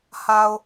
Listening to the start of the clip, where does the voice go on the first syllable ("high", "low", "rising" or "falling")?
low